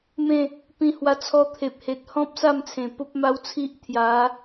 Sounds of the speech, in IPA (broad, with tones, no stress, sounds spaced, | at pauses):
m ẽ˥˧ | p ĩ˧ h w a˧ t͡sʰ ɔ˧ t̪ʰ e˨ p̚ h e˨ t̚ h ɔ̃˦ p̚ s a˥˧ m t͡sʰ ẽ˨˩ p o˦ p̚ m a˦ w t͡sʰ i˦ ʔ t̪ʰ j a˨˦